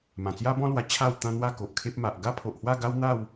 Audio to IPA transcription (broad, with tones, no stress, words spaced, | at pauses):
mã˨˩t͡sja˦bɔ̃˦lwa˧ t͡ɕʰa˥˧wt̪ã˦ n̪wa˥˧ko˨ʔkʰe˦p̚ ma˨ʔɡa˦pʰo˨ʔhwa˥˧ ɡa˦wn̪a˥˧w